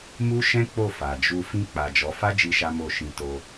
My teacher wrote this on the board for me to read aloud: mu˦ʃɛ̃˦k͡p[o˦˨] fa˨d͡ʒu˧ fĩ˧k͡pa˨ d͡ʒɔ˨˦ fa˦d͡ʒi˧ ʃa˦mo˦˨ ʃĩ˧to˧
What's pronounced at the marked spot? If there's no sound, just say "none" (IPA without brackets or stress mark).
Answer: o˦˨